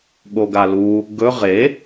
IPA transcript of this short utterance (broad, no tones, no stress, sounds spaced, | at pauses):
ɠ o ɡ a l u | ɡ ɵ ʁ e